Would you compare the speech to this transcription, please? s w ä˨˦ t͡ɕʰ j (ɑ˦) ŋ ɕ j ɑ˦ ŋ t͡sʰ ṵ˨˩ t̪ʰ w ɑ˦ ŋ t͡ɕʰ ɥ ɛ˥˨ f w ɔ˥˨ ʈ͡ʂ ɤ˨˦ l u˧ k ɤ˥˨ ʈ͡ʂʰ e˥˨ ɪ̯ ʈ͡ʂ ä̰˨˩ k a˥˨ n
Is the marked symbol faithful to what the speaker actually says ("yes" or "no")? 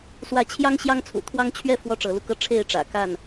yes